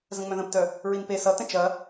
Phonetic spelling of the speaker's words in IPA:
zə̃ŋ͡mœ̃ðə̃ptœ | ɹinpe sʌtə̃ t͡ʃɐ

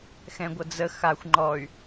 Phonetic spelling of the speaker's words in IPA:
xɛ̃ɡʷɐd͡zə xaxʷ ŋ͡ǃɔy̯

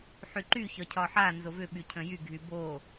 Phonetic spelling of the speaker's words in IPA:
ħyǃy çɒcʰɒħa nzovʏɓy cʰə̃jy ɡʱybo

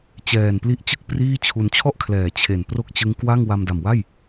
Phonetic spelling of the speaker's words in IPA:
t͡ɕɛː˨˩n pli˦˥ʔt͡ɕɯ˥˩k̚ priː˥˩t͡ɕʰu˧n t͡ɕʰɔ˥˩ʔkʰlɛː˩˦ t͡ɕʰe˨˩n pro˥˩k̚t͡ɕɯ˦˥ŋ kwa˥˩ŋ wa˧mda˨˩mwa˥˩j

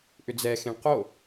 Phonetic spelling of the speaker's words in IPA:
ʔʏd͡zɛxẽɳ qo

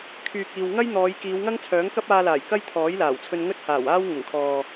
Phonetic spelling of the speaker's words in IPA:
kʰyː˨k̚iː˨w ŋɐ˥jn̪ɔː˨˧j kiː˨˧wŋɐ˥ŋt͡sʰœː˨˥ŋkɐ˥p̚ aː˧laː˨˩j kɐ˥jt̪ʰɔː˨˥jlaː˨˩wt͡sʰɵ˧n ŋɵ˥t̚haː˨˩waː˥w ŋʊ˨˩ŋkʰɔː˨

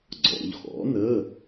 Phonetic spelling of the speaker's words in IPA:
ɡ͡ǀɔ̰˩˧ʎxɔ̰˩˥nə˧˥˧

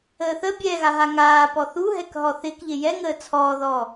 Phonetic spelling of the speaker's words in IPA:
əːθə bʲɛɣa ɦaŋaːpɔ θuɦɛkɦɔ θɪk ʎɪjɛŋəː t͡sʰɔːðɔː

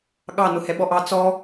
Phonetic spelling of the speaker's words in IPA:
ɠɑ nʊhɛɓɔʔɑ t͡sɔ

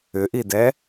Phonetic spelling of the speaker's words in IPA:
ʏʔidɛ

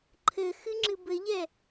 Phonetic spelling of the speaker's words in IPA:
ǃʰɘ xɨŋ͡ǁɨbɘʎɛ

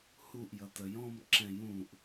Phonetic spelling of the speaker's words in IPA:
huʔjʌ təjɔ̃m ǁɛ̃jũʔ

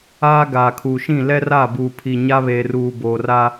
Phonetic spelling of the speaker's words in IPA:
aː˦ ɡaː˨kʰuː˨ʃĩ˦˨ lɛ˦raː˦˨buː˨ pʰi˨ ɲa˦βeː˨ruː˨ boː˨raː˦

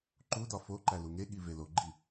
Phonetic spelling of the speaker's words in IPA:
ǃudɒ foǃæ luŋeɠi veloɡ͡ǃi

